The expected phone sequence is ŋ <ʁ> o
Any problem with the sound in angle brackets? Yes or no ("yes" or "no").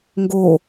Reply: yes